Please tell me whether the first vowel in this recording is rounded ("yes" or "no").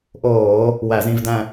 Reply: yes